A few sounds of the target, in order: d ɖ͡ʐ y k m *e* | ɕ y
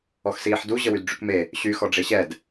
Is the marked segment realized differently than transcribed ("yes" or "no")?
no